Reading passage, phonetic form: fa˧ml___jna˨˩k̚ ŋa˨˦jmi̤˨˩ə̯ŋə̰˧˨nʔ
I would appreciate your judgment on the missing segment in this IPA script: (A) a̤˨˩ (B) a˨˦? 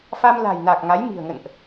A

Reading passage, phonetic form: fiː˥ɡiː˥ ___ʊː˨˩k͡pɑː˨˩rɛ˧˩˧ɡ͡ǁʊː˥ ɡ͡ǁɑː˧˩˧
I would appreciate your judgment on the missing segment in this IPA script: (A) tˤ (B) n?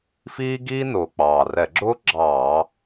B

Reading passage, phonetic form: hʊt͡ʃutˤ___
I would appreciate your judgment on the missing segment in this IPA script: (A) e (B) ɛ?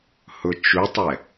B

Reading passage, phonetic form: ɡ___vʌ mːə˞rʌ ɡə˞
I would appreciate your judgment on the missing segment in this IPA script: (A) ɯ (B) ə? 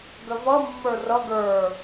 B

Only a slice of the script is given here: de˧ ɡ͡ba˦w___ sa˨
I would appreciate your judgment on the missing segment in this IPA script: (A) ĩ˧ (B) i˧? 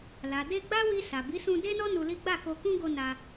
B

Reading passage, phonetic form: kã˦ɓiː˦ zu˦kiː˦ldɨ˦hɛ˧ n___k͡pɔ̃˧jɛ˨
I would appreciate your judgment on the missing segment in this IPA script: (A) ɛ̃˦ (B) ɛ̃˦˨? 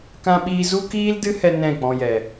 B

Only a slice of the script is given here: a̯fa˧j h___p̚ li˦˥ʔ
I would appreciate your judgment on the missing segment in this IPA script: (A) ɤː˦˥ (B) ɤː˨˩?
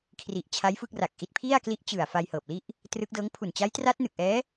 B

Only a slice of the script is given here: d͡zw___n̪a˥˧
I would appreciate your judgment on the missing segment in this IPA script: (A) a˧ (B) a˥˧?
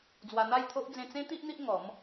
A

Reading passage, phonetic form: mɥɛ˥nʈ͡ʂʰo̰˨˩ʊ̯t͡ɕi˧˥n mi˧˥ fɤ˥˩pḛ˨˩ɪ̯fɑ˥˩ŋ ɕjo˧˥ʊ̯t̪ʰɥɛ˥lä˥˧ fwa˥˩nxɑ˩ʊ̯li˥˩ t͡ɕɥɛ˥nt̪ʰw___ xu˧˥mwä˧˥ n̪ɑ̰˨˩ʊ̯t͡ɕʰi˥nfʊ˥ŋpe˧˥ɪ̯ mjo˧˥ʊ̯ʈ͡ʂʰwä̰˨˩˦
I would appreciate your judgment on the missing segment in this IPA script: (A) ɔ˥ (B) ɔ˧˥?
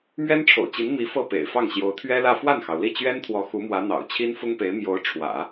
B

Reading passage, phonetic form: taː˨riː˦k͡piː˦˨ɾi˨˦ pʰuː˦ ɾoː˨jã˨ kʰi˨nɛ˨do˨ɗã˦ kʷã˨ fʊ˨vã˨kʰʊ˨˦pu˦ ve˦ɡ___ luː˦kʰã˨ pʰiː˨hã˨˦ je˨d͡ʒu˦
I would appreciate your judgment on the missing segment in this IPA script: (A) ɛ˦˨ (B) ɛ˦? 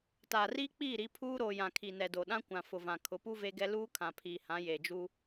B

